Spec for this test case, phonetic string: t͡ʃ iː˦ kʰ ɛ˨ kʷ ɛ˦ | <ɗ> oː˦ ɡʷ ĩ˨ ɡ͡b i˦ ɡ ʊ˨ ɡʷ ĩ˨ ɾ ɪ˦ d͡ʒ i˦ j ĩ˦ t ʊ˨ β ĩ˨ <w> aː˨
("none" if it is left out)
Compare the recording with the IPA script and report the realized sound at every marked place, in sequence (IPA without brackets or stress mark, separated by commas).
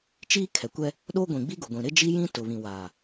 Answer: ɗ, w